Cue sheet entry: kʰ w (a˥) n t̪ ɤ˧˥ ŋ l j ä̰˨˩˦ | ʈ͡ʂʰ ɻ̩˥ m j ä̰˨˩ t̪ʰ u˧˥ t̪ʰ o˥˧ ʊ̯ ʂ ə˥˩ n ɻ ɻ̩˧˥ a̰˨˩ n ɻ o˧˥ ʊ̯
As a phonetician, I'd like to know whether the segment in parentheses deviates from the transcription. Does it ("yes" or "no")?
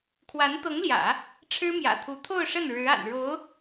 yes